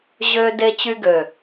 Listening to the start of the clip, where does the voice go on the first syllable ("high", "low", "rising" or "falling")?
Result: high